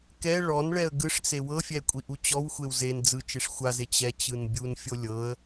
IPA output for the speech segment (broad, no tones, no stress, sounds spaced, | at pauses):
k ɛ ɭ ɔ n ɭ ɛ ə̯ ɡ ɯ ʂ t͡s e w ɤ fʲ ɛ kʷʼ i ʔ u t͡ɕ ɔ w xʷ e w z e n d͡z ɯ t͡ʃ e ʂ xʷ a z e t͡ɕ ɛ t͡ɕ ɯ n bʲ u n fʲ o lʲ ɤ ə̯